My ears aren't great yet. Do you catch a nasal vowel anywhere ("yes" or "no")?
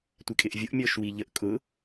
no